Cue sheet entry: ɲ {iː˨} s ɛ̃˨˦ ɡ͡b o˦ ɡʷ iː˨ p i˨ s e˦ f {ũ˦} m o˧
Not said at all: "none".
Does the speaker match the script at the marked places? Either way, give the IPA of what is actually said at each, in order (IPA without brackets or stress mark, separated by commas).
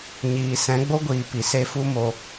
iː˨, u˦